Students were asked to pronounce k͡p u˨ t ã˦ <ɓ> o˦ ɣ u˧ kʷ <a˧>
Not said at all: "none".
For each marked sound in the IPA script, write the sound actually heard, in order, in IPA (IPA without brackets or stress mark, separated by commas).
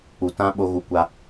ɓ, a˧